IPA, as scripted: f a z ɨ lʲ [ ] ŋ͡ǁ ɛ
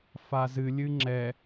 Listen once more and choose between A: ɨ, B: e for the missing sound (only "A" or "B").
A